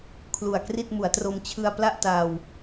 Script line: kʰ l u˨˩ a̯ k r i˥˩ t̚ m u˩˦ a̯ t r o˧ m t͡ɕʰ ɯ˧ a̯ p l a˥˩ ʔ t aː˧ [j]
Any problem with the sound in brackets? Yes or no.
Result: yes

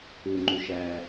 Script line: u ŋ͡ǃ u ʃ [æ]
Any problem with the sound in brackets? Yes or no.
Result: no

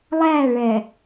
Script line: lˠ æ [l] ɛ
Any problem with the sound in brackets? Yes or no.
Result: yes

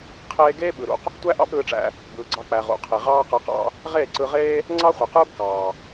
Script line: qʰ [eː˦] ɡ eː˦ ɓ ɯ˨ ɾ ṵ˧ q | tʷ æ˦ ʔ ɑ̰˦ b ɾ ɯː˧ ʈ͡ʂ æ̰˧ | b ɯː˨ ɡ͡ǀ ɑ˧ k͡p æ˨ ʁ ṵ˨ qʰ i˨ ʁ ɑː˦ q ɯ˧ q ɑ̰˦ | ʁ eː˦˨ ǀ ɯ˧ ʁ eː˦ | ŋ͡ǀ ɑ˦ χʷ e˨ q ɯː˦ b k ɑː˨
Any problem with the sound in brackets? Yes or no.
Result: no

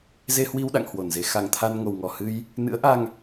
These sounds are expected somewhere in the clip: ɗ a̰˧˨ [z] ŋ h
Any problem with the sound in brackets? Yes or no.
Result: yes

